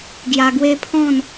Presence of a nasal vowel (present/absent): present